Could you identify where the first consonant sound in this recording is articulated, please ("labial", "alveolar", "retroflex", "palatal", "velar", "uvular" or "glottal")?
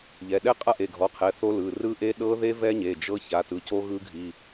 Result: palatal